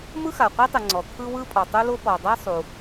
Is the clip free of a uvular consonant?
no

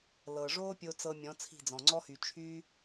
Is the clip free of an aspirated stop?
no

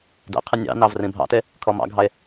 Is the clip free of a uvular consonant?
no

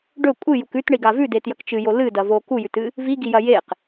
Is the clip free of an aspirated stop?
yes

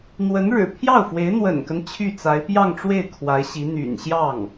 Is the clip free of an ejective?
yes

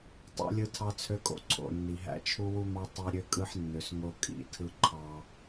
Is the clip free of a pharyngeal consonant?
no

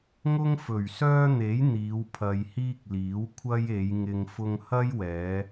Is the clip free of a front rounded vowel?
no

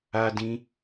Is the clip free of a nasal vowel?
no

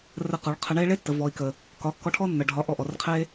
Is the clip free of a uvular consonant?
no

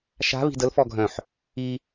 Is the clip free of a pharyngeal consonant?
no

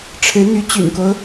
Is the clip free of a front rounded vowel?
no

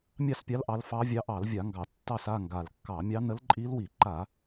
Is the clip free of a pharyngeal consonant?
yes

